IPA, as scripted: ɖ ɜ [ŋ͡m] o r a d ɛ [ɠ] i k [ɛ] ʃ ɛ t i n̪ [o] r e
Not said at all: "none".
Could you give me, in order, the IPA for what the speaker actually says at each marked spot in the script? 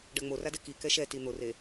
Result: ŋ͡m, k, ɛ, o

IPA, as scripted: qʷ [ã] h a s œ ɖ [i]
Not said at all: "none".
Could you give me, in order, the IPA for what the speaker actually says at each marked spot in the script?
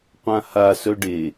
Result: ã, e

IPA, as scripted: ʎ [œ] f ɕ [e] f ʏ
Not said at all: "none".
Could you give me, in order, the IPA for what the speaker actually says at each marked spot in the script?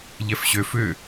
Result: ɛ, ø

